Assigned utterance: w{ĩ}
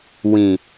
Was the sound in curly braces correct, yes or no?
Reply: yes